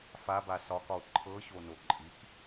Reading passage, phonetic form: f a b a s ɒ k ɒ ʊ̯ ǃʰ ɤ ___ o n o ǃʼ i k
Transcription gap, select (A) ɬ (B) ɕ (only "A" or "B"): B